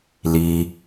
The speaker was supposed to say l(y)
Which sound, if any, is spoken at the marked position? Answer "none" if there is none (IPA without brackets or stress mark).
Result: i